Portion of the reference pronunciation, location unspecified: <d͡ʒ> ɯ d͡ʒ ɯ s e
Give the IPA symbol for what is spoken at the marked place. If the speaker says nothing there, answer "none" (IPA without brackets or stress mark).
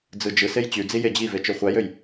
d͡z